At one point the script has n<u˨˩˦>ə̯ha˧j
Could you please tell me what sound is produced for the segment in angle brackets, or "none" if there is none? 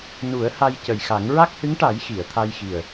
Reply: u˨˩˦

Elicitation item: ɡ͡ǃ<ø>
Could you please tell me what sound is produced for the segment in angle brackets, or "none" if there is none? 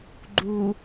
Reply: u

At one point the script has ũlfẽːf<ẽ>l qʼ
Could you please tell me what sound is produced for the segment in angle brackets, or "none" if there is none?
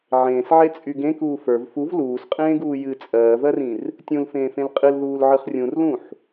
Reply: ẽ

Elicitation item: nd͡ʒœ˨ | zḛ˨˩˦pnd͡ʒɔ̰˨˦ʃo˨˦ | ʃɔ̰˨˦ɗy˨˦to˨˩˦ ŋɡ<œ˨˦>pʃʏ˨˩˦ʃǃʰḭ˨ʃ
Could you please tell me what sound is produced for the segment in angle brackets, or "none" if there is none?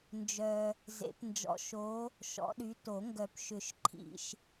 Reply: œ˨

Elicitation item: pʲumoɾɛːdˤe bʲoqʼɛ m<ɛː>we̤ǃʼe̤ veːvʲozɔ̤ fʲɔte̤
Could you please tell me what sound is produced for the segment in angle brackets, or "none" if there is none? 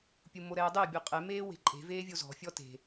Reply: eː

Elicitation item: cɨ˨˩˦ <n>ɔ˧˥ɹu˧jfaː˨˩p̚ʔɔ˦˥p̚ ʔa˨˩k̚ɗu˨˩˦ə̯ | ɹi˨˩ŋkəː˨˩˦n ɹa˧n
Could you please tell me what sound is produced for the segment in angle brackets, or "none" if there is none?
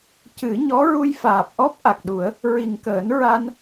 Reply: ɲ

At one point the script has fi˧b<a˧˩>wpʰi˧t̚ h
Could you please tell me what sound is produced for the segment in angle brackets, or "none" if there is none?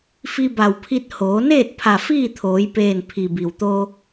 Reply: a˧˩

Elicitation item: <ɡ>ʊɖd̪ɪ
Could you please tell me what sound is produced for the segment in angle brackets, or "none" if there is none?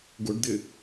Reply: ɡ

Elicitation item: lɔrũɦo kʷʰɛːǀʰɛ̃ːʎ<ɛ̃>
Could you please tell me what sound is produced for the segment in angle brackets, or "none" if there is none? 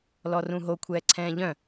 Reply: œ̃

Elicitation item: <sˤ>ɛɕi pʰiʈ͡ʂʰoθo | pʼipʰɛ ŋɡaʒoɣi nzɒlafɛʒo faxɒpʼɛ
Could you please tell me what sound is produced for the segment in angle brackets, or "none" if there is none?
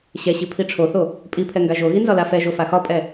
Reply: ɕ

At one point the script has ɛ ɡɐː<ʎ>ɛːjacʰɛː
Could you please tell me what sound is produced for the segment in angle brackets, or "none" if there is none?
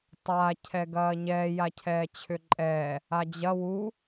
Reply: ɲ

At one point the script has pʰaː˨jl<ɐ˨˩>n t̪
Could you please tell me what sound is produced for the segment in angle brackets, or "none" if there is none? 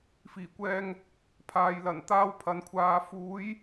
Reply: ɐ˨˩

